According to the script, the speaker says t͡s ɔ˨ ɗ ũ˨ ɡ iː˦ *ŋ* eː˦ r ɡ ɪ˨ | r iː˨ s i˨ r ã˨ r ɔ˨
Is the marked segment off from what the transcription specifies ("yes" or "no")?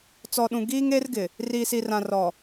no